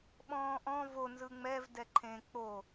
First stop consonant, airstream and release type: implosive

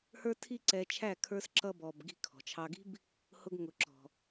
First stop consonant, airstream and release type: aspirated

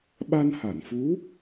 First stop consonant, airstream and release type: implosive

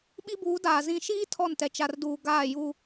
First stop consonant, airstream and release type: implosive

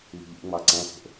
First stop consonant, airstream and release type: click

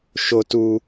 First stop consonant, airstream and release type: plain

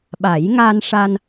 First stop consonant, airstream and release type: implosive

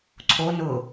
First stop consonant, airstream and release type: click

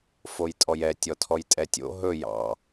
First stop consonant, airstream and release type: ejective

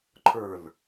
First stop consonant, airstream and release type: click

